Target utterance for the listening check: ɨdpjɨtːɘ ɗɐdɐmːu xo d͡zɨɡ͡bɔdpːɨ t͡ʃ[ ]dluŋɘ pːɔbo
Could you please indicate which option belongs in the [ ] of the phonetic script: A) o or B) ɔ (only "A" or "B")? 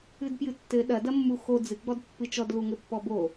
B